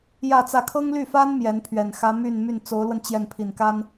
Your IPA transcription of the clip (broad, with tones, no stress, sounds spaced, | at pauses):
j ä˥˧ t͡s ä˥˩ kʰ ɤ˥ ŋ l y˥˩ f a˥ n m j ɛ˧˥ n pʰ ɥ ɛ˨˩ n x ä˧˥ m y˥˧ n m y˥˩ n t͡s o˧˥ ʊ̯ l w ə˧ n t͡ɕ j ɛ˥˩ n pʰ i˨˩ n k a˥ n